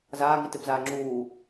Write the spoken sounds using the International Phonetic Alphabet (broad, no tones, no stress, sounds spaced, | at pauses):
z aː ŋ i t e p z aː ŋ͡ǁ uː